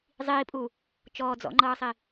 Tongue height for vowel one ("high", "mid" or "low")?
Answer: high